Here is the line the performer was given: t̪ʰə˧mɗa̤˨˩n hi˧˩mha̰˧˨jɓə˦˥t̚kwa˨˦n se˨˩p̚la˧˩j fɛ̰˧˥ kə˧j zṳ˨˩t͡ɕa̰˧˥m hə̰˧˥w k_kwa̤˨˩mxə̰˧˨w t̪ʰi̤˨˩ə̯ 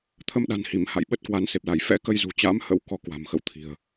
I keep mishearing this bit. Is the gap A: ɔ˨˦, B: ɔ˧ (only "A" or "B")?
B